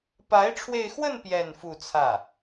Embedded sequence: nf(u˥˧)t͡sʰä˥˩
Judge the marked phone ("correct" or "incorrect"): correct